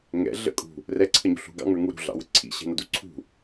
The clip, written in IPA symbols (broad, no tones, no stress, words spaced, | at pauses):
ŋɛ̰ ɮə̰ kʼṳ | rɛǀʰəɲṳ ɬṳɡɑ̰ŋə˞ŋu ɾṳɮɑ̰wə ǀʰḭɕɛ̤nʌdu ǀʰṳ